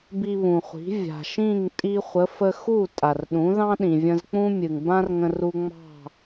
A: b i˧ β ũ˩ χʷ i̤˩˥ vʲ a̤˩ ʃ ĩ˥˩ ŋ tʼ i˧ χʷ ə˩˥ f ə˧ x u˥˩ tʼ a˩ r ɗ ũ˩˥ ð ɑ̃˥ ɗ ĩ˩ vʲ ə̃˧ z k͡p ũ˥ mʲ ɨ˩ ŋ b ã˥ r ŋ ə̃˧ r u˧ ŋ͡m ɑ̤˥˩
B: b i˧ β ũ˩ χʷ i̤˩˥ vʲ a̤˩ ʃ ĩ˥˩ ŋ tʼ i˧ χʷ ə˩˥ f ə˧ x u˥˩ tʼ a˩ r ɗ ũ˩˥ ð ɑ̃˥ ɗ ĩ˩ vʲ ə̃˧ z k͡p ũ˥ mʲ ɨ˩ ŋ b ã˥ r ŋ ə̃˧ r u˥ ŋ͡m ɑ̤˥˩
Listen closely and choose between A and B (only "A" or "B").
A